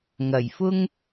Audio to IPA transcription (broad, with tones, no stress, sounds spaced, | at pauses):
ŋ ɐ˨˩ j f ʊ˥ ŋ